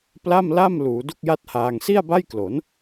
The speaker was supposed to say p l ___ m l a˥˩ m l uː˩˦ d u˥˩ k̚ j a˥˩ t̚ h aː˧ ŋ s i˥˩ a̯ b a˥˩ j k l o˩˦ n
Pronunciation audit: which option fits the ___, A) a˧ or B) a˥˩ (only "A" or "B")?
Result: B